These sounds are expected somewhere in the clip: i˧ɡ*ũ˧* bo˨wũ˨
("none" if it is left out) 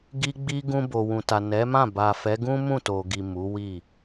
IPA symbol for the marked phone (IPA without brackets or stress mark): ũ˧